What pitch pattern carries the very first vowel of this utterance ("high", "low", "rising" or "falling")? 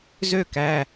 falling